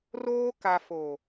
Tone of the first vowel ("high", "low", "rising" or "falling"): high